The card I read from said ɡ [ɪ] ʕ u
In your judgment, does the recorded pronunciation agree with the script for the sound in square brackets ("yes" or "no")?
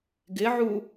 yes